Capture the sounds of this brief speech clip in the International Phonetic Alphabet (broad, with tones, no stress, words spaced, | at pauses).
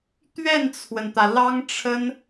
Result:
t̪ɥɛ˥˩nt͡sʰwə˩nt̪ä˩ lɑ˥ŋʈ͡ʂʰə˥n